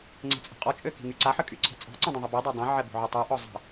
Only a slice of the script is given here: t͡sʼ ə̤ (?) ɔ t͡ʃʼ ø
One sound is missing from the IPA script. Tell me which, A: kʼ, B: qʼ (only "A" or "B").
B